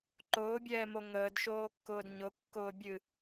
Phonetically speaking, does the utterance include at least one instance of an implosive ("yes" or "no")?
no